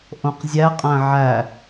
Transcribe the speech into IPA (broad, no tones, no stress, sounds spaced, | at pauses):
ʔ õ q zʲ æ qʼ æ̃ ʕ æ